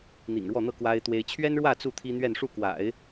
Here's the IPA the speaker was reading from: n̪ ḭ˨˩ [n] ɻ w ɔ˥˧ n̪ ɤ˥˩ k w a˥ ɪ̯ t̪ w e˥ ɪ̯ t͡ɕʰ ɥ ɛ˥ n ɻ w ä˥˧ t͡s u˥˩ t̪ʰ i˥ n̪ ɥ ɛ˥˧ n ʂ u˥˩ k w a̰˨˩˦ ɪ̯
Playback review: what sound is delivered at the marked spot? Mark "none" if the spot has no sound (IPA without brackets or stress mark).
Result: ŋ